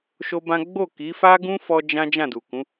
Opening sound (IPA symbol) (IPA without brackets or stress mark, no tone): ʃ